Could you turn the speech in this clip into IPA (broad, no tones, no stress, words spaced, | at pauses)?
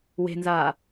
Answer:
we̤nzaː